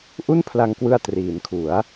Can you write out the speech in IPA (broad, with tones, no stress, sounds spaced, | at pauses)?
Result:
ʔ u˥˩ n pʰ l a˧ ŋ k w ɯ˧ a̯ t r iː˩˦ n kʰ u˩˦ a̯